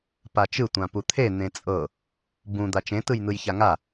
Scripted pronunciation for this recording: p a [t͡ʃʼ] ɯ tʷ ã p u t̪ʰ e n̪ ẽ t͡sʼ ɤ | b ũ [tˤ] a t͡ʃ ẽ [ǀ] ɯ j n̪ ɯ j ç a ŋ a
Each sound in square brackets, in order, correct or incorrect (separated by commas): incorrect, incorrect, incorrect